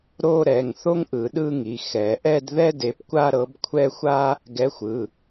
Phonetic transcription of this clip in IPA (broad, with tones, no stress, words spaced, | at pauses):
ɾo˥˧ ɾɛ˩˧˩ŋ θo˥ŋʔɯ˨˩˦ɗɯ˥˧ŋi˩˧˩ xɛ˨˩˦ʔɛ˥˧dðɛ˥ de˨˥pkʷa˥˧ɾɤ˨˥b kʷʰɛ˥˧xʷa˥ | ɡɛ˨˥xʷɯ˩˧˩